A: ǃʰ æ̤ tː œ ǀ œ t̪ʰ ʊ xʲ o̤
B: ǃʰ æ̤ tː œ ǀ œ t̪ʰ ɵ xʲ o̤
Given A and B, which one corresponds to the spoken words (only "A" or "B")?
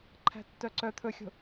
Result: B